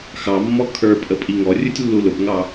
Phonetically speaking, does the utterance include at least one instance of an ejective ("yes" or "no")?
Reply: yes